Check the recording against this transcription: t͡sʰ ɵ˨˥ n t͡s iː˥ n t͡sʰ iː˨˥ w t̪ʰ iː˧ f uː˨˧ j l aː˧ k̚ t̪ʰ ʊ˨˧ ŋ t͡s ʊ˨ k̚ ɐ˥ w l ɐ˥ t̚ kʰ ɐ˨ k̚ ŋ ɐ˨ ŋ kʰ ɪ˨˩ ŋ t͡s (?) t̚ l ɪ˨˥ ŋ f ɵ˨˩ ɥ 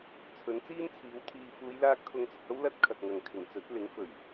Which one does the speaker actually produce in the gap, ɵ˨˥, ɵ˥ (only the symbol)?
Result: ɵ˨˥